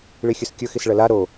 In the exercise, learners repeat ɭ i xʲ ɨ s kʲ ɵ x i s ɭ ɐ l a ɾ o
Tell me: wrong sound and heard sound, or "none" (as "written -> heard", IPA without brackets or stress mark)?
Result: none